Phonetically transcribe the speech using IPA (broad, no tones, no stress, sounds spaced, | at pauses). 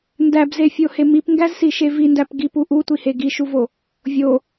n d æ b z e fʲ o h e m i p ŋ ɡ æ z s i ʃ e v i n d æ p ɡ i p u ʔ u tʷ i h e ɡ i ʃ u v o | vʲ o